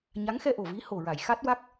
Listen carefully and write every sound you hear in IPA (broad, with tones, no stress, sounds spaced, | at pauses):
ɲ a˧˥ ŋ x ɛ˧ ʔ o˨˩ v i˧˥ h o˨˩ ɹ a˨˩˨ j x a˦˥ t̚ w a˦˥ k̚